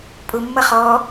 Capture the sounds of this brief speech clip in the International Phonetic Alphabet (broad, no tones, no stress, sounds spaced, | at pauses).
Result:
pʼ ʊ mː ʌ χ ɔ